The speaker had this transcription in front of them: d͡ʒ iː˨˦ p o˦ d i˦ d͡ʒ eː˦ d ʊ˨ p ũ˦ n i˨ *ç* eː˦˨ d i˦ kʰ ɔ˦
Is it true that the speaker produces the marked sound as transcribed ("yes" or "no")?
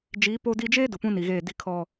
no